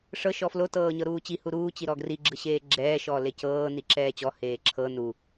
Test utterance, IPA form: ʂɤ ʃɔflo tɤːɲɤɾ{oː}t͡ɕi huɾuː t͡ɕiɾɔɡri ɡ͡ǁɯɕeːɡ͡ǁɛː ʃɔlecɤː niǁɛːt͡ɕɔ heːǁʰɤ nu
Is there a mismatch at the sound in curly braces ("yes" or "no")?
yes